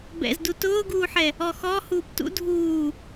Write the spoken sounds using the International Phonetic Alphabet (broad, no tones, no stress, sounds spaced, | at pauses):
b ɛ̰ z d u t ʊː ɡ uː ħ ɛ | ɔ x ɔ h uː p t ṵ dʱ uː